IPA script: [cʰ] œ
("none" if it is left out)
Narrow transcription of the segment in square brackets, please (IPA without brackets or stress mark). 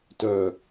t